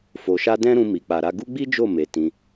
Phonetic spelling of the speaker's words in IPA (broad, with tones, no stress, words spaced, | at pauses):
fo˨ʃa˧ dɛ̃˦ɾũ˧ mi˨k͡pa˨ɾa˧ ɡu˦ɡ͡bi˦ d͡ʒo˦˨ me˨ tĩ˧